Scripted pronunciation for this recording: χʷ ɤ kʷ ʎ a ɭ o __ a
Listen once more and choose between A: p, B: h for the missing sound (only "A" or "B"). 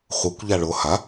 B